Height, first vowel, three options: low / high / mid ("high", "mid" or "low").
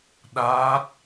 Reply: low